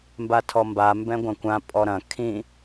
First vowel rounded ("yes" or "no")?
no